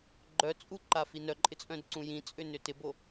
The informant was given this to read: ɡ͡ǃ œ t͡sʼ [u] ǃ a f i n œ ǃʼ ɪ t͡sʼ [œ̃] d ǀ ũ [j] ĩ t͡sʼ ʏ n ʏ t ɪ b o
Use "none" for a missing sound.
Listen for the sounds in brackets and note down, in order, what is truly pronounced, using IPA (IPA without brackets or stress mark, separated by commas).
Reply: u, œ̃, j